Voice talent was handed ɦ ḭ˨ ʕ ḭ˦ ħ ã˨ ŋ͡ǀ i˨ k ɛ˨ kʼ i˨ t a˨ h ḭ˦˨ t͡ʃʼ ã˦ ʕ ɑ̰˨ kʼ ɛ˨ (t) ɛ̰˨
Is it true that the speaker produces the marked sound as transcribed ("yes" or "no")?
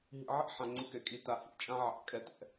yes